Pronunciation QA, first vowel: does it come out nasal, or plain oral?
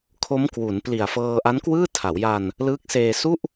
oral